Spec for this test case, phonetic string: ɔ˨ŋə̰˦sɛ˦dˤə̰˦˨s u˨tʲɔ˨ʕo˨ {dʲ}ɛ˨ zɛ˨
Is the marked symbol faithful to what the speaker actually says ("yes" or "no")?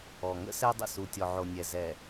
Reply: no